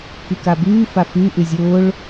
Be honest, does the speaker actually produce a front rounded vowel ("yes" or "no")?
yes